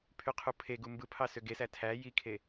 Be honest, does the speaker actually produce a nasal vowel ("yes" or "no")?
no